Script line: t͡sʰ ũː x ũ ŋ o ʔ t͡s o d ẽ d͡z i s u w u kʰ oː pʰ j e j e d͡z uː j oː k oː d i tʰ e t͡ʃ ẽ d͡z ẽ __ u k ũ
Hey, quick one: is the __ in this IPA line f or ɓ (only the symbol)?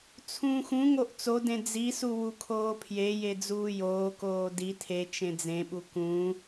ɓ